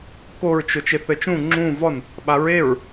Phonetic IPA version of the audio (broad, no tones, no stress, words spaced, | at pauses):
koɹt͡ʃʊ t͡ʃeθɘt͡ʃũ ŋ͡ǁũ vɔn | ɓaɹeɹ